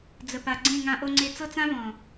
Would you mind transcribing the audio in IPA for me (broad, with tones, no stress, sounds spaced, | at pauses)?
d͡z ə˨ p a˨ ɡ͡ǀ ẽ˦˨ ŋ ã˧ ʔ o˧ ŋ͡ǀ e˧ t͡s ɤ˦ t͡s ã˦ v ɔ̃˨